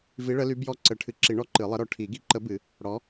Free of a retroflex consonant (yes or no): no